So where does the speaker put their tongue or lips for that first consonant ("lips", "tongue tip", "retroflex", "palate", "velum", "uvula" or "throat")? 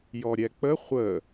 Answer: palate